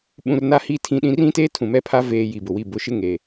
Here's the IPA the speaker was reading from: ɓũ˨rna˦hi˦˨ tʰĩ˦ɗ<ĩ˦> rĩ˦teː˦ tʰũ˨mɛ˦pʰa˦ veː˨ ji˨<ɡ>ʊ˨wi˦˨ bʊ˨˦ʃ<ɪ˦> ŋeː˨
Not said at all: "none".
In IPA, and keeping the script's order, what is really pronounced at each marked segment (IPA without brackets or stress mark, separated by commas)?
ĩ˦, b, ɪ˦